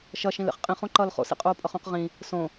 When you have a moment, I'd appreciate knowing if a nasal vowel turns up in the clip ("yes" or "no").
yes